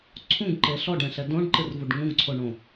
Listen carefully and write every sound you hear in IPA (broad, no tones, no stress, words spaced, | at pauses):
ǀʰũɡǃe ɬɔɖɛ̃ɬɛ dõɖǃɨrvuɖ ŋũɡǀʰoɳõ